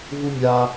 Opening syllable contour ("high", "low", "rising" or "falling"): high